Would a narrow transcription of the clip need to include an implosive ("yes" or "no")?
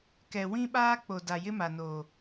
yes